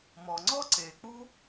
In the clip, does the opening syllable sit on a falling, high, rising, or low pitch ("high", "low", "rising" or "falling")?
low